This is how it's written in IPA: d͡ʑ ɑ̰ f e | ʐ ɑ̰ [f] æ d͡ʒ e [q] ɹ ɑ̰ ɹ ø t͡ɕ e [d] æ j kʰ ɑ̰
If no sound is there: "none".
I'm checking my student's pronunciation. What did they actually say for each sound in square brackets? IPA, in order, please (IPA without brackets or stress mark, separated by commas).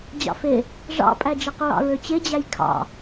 pʼ, q, d͡ʑ